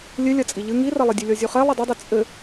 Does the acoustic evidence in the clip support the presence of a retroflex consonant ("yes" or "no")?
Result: no